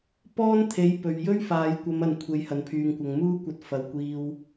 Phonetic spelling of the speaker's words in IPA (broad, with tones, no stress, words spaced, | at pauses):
pɔː˥nt̪ʰe˨˥j pɵ˨ɥjɵ˥ɥ faː˨˧jkʷɐ˨˧mɐ˨n kʷʰe˨˧jhɐ˨npʰyː˨ŋkʷɐ˨ŋ muː˥kʷɐ˧t̚ fɐ˨wkʷiː˧w